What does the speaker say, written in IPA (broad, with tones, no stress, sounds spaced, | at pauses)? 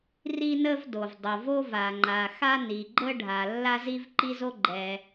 r i˥ n ə˥ v d o˩ v dˤ o˩ v o˥ v a˩ ŋ͡ǃ a˩ x a˥ n i˩ ɡ͡ǃ ə˥ ɖʱ a˩ lː a˥ z i˥ v ǃ i˥ z o˥ ɡ͡ǃ ɛ˩